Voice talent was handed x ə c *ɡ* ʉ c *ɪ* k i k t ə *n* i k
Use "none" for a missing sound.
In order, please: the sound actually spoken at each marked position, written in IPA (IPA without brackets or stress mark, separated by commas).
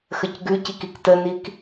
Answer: ɡ, i, n